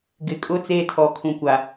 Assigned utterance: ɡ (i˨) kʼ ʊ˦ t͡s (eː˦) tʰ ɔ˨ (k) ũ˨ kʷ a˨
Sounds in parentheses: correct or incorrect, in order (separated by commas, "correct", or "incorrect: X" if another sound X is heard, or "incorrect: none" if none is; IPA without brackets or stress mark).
incorrect: ɪ˨, correct, incorrect: kʰ